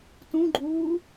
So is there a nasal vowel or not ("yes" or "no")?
yes